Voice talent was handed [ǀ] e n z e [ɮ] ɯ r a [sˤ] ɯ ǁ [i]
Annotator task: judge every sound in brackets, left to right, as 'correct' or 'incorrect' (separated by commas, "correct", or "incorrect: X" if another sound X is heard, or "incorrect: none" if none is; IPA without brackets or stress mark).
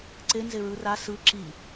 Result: correct, incorrect: ɹ, incorrect: s, correct